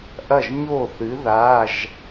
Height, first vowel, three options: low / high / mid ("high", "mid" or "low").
low